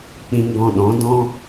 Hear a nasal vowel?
yes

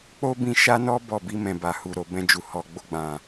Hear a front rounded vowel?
no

